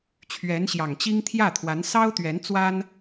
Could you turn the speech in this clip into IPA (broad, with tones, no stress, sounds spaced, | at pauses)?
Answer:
t͡ɕʰ ɥ ɛ˧˥ n ɕ j ɑ˨˩ ŋ t͡ɕ i˥ ŋ t̪ʰ j ä˥˩ t̪ʰ w a˧˥ n s ɑ˥ ʊ̯ t̪ ɥ ɛ˧˥ n t͡s w a˥ n